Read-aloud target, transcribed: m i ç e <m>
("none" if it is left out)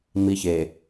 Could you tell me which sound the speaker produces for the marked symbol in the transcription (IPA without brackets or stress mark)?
none